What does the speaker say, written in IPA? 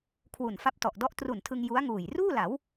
kʰ w u˨˩ n f a˦˥ p̚ t ɔ˨˩ ʔ d ɔ˥˩ ʔ t r u˨˩ n tʰ ɯ˧ ŋ j u˦˥ a̯ ŋ uː˨˩ j r uː˥˩ l a˩˦ w

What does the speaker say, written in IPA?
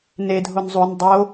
n e dʱ o n zˤ u n dˤ o

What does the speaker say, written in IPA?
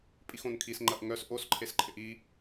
pʼ i x õ n kʰ i s ŋ͡ǃ ɐ ʔ ŋ œ s ʔ o s ǃʰ e s ǃʰ ɪ ʔ i

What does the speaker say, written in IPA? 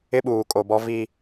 ɪ˦ ɓ uː˨ kʼ o˨ b ɔ˦ v i˦

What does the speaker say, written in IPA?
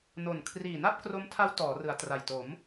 n o˨˩ n kʰ r iː˨˩ n a˥˩ p̚ k r o˦˥ m tʰ a˦˥ w t ɔː˩˦ r ɯ˩˦ a̯ t r a˨˩ j t o˩˦ m

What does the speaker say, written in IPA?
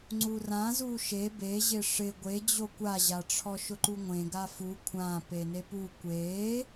ŋ͡ǀ u r ã z u ʃ e b e ʑ ɪ ʂ ɪ ɡʷ e d͡ʑ o kʷ a ʑ a ʈ͡ʂʰ ɔ ʃ ʊ ǃ u ŋʷ ẽ ɡ a f u kʷʰ ã p e n e p u kʷ e

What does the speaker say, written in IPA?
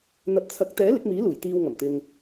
n̪ ɐ˨ p̚ t͡sʰ ɐ˨˥ k̚ t̪ ɛː˨˥ l ɪ˨˥ k̚ m iː˨˥ l uː˨˩ j t̪ iː˧ w ŋ ɐ˨˩ m t̪ ɪ˨ ŋ

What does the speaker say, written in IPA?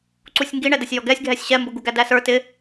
ǀ u sʲ ŋ ɡ i ɳ ɛ d ə sʲ j ɔ ɡ ɛ sʲ ɡʱ ɛ sʲ ɕ ɛ m b ʊ ɡ u ɡ æ d æ s ə˞ t ɪ

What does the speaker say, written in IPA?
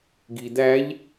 ɡ i d̪ æ ʎ

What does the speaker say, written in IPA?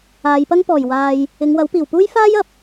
aː˨˧ j p ɐ˥ ŋ p ɔː˨˩ j w aː˨ j | ɪ˨˧ ŋ w ɐ˨˥ w p iː˨˩ w p uː˥ j f aː˥ j ɐ˨˥ p̚

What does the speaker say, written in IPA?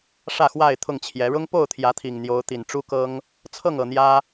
ʂ ä˥˨ x w a˥˨ ɪ̯ t̪ʰ ʊ˥˨ ŋ t͡ɕʰ j ɛ˨˦ ɻ ʊ˦ ŋ p o˥˨ ʊ̯ t̪ʰ j ä˨˦ t̪ʰ i˨˩ ŋ n̪ j o˨˦ ʊ̯ t̪ i˨˩ n ʈ͡ʂ u˦ k ɤ˦ ŋ | t͡sʰ ɤ˥˨ ŋ ɤ˨˩ n̪ j ä˦

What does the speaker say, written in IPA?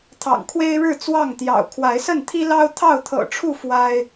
t̪ʰ ɑ̰˨˩ ŋ kʰ w e˦ ɪ̯ ɻ ɻ̩˥˨ t͡s w ɑ˥˨ ŋ t̪ j ɑ̰˨˩ ʊ̯ kʰ w a˨˦ ɪ̯ s ə˥˨ n t̪ʰ i˦ l ɑ˦ ʊ̯ t̪ʰ ɑ˥˨ ʊ̯ t̪ʰ ɤ̰˨˩ ʈ͡ʂʰ u˥˨ f w a˦ ɪ̯

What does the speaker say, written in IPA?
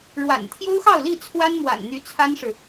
ɻ w a̰˨˩ n t̪ʰ j o˥ ʊ̯ x ɑ˥˧ ʊ̯ l i˥˩ t͡sʰ w a˥ n m w a̰˨˩ n n̪ y˧˥ t͡sʰ a˥ n ʂ ɻ̩˨

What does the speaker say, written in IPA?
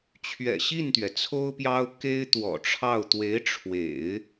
t͡ɕʰ ɥ ɛ̰˨˩ ɕ i˥˩ n t̪ ɥ ɛ˩ t͡sʰ o˥ ʊ̯ p j ɑ˥ ʊ̯ k e˥ ɪ̯ t̪ w ɔ̰˨˩ ʈ͡ʂʰ ɑ˥˩ ʊ̯ t̪ w e˧˥ ɪ̯ ʈ͡ʂʰ w ḛ˨˩˦ ɪ̯

